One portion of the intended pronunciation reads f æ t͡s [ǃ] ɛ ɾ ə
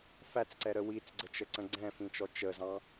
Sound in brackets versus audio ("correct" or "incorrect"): incorrect